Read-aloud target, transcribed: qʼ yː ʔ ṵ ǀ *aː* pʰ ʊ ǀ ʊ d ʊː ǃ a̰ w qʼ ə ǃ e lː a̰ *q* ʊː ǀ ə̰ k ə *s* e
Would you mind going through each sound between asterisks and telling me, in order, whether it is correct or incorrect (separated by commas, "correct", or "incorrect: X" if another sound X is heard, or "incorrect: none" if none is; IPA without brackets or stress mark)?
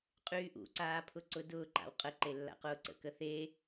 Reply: correct, correct, incorrect: θ